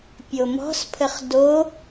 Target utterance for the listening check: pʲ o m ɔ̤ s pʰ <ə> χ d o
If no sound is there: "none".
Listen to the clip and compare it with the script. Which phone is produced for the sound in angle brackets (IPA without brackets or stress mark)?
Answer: ə